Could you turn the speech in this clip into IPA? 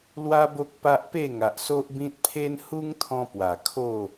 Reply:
l w a˦ b o˦ k̚ p a˦ ʔ p e˥˧ ŋ a˨ ʔ s o˦ ʔ b ĩ˦ t̚ pʰ e˦ n h u˦ ŋ t̪ʰ ɔ̃˧ p w a˨˩ kʰ o˥˧

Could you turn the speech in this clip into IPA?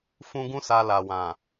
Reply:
f ũ˦ ɡ ũ˦ s a˧ l a˨ w ã˨

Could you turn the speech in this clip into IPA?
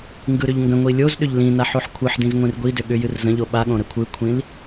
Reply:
ŋ ɡ ɯ ɾ ʏ ʎ ŋ ɡ ə̃ ŋʷ i lʲ o z ɗ ʏ ʎ l ĩ n a ħ o ħ kʷʰ ɯ ħ d ĩ z ŋʷ ĩ r ɡʷ i d ʏ ɠ ʏ j ɨ r z ə̃ ʎ o ɓ a ɠ õ ɾ ə kʷʰ ɯ kʷʰ ĩ l

